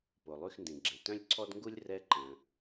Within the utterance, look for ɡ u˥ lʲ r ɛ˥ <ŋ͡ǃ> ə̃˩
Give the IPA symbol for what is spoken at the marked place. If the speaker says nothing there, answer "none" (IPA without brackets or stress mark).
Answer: ǃ